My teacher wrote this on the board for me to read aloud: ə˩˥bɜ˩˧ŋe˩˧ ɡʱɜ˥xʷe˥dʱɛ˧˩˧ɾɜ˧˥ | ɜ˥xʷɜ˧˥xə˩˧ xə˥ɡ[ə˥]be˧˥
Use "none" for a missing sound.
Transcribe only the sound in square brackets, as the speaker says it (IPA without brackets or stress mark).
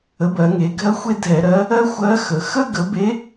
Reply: ə˩˥